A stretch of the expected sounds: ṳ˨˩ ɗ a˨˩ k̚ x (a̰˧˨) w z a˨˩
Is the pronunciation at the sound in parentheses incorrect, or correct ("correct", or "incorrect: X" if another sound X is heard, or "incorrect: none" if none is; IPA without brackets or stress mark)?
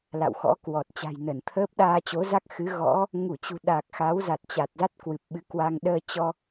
incorrect: a˨˦